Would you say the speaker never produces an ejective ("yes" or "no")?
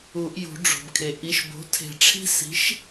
yes